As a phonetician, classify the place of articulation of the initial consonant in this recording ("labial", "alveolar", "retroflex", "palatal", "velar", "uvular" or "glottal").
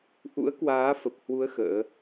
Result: glottal